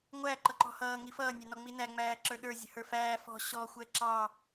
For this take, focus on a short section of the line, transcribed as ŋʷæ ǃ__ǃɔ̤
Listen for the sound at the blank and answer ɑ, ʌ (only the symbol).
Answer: ʌ